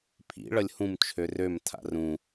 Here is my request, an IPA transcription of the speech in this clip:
pʰ ḭ ɭ ʌ lʲ h ũ m t͡ʃʰ ø r ø m tʰ a̰ r ũ

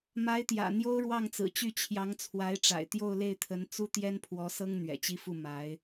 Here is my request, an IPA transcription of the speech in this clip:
m a˧˥ ɪ̯ t̪ j ä̰˨˩ n̪ j o˥ ʊ̯ ɻ w ɑ˥˩ ŋ t͡s ɹ̩˨˩ t͡ɕ y˥˩ t͡ɕʰ j ɑ˧˥ ŋ t͡sʰ w a˧˥ ɪ̯ ʈ͡ʂ a̰˨˩ ɪ̯ t̪ j o˥˧ ʊ̯ l e˥˩ ɪ̯ t̪ʰ ə˧˥ n t͡s u˥ t̪ j ɛ˥ n pʰ w ɔ˧˥ s ɤ˥ ŋ n̪ ɥ ɛ̰˨˩ t͡ɕ i˥ f u˥˩ m a˧˥ ɪ̯

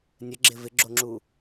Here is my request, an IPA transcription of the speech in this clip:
nʲ ə ɡ͡ǁ ɪ v ɪ ɡ͡ǁ o ŋ͡ǁ u

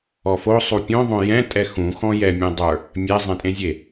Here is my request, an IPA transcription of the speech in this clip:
ɔ f o sˤ u pʲ õ ðˤ õ j ɛ̃ tʼ ɛ x ũ x ɔ̃ j ɛ mʲ ɛ̃ dˤ ə˞ | mʲ ɛ zˤ ɛ̃ tʼ ẽ zʲ e

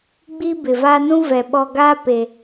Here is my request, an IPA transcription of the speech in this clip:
ɡ͡b i˦ b ɪ˨ v a˦ n ũ˦ v ɛ˨ ɓ ɔ˦ ɡ aː˦ p e˨

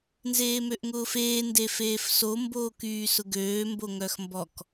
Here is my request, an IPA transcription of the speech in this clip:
n z eː m ø ʔ ŋ ʊː f eː n d e f eː f s o m b oː k yː s ʊ ɡ øː m b o ŋ œ x m b ɔ k

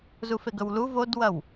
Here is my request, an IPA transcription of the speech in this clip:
z u f e ɡ ɵ w l u v o d w ɐ w

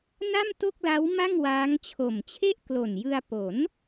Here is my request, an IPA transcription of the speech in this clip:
n a˥˩ m t o˥˩ k̚ l a˦˥ w m a˥˩ ŋ w aː˦˥ ŋ t͡ɕʰ o˨˩ m t͡ɕʰ e˥˩ ʔ k l o˨˩ n j ɯ˧ a̯ p o˩˦ n

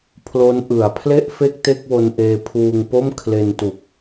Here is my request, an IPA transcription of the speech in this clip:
pʰ l o˦˥ n ʔ ɯ˩˦ a̯ pʰ l e˥˩ ʔ f e˥˩ k̚ t e˥˩ k̚ w o˧ n ʔ eː˧ pʰ uː˧ ŋ p o˥˩ m kʰ l e˧ n t u˨˩ k̚

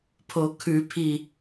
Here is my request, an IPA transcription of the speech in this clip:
pʰ o kʰ ʉ pʰ i

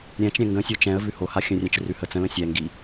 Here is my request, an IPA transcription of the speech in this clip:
ɾʲ ɛ̃ t͡ʃ ɾʲ ɛ̃ ŋ ɡ ə̃ sʲ o t͡ʃ ɛ̃ ə̯ v ʉ h o h a xʲ ə̃ rʲ ɛ̃ t͡ʃ r ʉ h ə t͡s ə̃ l ə̃ sʲ ɛ ŋ ɡ i

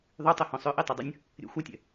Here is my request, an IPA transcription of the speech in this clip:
ðˤ y tˤ ɛ h õ sˤ ø ʔ i tˤ e dˤ ə nʲ | ɾʲ ɛ̰ xʷ a tʲ ɛ̰

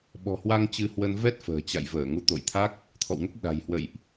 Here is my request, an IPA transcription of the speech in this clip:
ɓ ɔ̤˨˩ h w a˧ ŋ t͡ɕ ɨ˧ h w ə˧ n v ɛ˦˥ t̚ f ə̤ː˨˩ t͡ɕ a̰˧˨ j v əː˧˩ ŋ u˨˦ t̪ o̰˧˨ j t̪ʰ a˦˥ k̚ | t̪ʰ ɔ̰˧˨ w ŋ ə˦˥ p̚ ɗ a̤˨˩ j h w ə̰˧˨ j ʔ

